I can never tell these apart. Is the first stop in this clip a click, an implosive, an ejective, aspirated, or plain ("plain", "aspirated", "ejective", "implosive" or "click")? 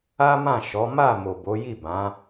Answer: plain